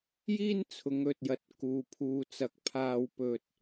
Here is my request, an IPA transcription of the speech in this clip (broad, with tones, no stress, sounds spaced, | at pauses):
j iː˥ n t͡sʰ ʊ˨˧ ŋ ɵ˨ t̚ j ɐ˨ t̚ k uː˨ pʰ uː˨ t͡s ɐ˨ k̚ pʰ aː˧ w p ɵ˧ t̚